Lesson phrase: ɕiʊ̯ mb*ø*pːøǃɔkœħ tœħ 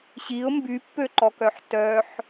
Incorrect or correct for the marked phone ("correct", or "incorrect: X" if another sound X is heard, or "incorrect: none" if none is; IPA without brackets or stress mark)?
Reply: incorrect: y